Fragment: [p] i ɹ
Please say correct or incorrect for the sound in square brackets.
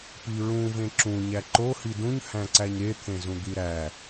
correct